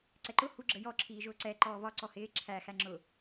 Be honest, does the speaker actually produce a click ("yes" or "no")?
yes